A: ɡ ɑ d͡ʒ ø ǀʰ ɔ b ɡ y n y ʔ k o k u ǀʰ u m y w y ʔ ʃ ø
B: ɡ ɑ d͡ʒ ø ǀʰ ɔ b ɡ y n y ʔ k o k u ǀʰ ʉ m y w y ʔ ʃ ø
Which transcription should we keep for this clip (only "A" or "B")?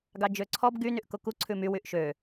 B